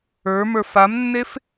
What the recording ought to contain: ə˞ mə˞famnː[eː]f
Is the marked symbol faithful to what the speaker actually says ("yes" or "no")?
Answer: no